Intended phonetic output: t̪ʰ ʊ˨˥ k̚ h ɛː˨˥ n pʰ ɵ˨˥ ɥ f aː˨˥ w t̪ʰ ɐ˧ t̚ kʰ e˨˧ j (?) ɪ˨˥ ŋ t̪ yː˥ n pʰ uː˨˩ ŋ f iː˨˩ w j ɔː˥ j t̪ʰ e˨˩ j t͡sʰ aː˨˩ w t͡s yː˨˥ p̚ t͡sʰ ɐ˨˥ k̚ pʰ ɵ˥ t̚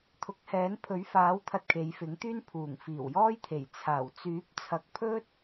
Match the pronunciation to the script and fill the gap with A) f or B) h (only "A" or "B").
A